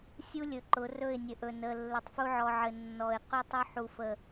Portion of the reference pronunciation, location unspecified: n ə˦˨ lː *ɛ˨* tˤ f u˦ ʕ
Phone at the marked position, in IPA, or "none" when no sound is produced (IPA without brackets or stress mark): ɘ˨